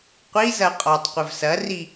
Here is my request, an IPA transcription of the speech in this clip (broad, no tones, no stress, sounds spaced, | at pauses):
qʷ i z ɐ qʼ ɔ tˤ qʷ ɘ v s ɐ r i